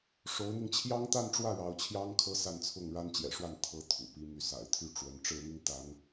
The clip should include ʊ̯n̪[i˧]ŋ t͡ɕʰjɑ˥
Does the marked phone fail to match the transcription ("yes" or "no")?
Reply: no